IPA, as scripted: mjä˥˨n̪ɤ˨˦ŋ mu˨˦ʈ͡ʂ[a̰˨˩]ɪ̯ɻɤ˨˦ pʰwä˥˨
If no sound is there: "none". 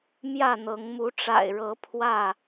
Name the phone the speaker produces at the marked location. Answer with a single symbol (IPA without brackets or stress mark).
a̰˨˩